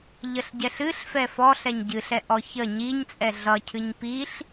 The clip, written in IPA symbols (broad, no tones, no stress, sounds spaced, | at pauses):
ʎ ə ɬ ɟ ɛ ɬ ɨ ɬ f ɛ f ɔ ɬ ɛ ɲ ɟ ɨ ɬ ɛ ʔ ɔ ç ə ɲ i ɲ t͡sʼ ɛ ɮ ʌ cʰ ɨ ɲ p i ɬ